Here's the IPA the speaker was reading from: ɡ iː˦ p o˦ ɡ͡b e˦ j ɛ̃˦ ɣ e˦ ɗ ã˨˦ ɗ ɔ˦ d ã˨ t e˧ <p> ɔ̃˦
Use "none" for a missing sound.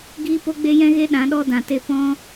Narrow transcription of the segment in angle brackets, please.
p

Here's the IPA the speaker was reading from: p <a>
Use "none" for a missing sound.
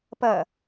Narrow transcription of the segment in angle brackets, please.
ɐ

